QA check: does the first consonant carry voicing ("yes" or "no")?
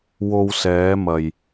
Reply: yes